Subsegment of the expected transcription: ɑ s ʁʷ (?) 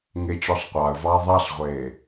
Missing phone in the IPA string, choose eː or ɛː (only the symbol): eː